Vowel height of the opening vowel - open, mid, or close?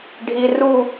close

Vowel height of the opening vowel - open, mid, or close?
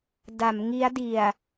open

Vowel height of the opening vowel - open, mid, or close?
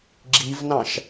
close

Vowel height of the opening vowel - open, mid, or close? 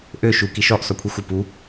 mid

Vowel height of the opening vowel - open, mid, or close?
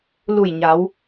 close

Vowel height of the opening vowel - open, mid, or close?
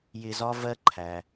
close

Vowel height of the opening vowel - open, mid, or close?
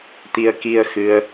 close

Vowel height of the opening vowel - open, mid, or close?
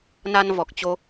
open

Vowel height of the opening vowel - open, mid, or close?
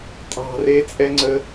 open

